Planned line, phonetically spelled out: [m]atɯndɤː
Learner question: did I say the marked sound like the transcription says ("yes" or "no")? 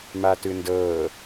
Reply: yes